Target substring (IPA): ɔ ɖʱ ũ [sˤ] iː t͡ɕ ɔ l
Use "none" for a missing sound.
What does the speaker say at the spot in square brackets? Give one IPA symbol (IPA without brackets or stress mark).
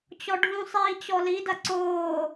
sˤ